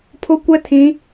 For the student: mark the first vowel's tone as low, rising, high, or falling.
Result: high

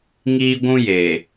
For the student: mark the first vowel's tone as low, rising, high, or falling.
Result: high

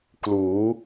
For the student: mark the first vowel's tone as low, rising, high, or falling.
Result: rising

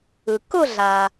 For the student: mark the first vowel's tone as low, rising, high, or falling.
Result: low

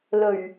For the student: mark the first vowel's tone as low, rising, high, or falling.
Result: low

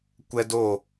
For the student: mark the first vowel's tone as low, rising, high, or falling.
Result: high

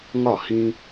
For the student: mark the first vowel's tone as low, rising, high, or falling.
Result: falling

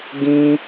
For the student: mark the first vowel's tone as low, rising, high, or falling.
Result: high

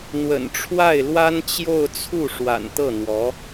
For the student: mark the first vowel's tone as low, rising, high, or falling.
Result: low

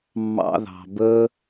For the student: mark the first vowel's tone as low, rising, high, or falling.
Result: high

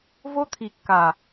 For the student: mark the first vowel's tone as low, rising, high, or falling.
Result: high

